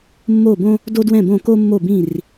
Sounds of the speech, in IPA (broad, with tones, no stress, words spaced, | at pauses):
mːo˧˩ bõ˥ | do˥dwɛ̃˥˩bõ˥˩ ko˥mːo˥˩bĩ˥˩r